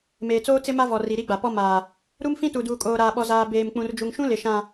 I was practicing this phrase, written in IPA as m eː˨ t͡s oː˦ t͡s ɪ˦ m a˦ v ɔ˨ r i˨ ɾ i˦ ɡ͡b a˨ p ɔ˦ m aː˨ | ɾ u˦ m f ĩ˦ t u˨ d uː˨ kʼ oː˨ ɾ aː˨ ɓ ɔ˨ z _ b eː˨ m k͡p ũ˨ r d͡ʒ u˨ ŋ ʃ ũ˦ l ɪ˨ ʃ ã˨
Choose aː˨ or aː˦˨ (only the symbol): aː˨